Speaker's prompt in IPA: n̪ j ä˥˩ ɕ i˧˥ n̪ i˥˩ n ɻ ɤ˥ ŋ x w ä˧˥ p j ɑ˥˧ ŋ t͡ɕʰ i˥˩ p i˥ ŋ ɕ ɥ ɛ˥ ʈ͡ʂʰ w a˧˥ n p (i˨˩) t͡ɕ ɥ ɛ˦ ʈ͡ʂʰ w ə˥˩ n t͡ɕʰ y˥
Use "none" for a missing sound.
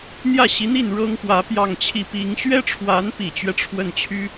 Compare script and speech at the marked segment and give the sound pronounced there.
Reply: i˨˩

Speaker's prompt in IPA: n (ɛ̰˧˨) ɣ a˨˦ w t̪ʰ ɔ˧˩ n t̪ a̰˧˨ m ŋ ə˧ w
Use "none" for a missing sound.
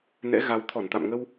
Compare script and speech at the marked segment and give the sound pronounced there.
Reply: ɛ̰˧˥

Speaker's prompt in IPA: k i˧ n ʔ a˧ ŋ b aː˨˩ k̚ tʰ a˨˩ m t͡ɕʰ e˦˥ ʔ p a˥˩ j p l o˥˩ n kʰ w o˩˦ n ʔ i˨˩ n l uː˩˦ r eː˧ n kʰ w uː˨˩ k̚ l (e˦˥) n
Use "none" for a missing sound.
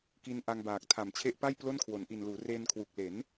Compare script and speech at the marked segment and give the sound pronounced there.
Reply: e˩˦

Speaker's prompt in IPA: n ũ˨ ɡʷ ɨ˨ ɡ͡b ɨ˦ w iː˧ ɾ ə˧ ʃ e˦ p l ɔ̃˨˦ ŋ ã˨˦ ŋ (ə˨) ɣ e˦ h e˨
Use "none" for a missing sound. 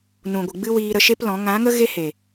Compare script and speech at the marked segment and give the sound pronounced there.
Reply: ə˦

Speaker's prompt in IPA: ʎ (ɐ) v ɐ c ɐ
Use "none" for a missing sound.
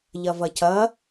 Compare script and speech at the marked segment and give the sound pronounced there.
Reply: ɐ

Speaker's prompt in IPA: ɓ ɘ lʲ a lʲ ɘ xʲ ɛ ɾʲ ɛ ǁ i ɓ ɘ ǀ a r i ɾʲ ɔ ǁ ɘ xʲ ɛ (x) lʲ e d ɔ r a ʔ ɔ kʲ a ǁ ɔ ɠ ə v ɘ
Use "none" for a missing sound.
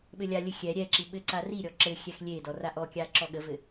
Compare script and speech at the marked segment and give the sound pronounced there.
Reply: x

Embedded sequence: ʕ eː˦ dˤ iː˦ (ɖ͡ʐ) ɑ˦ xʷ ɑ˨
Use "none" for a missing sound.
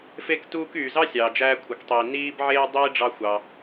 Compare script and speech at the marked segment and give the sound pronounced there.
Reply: ɖ͡ʐ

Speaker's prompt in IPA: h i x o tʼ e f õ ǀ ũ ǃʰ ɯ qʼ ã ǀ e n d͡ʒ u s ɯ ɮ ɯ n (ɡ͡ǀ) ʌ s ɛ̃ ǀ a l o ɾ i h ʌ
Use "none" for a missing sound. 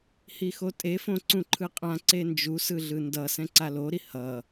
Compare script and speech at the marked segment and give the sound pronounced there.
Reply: d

